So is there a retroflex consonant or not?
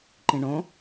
yes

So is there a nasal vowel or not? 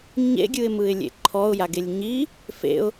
no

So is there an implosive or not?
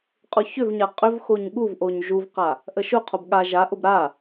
yes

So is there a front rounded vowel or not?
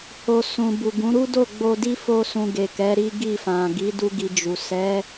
no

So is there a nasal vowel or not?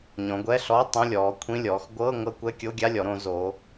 yes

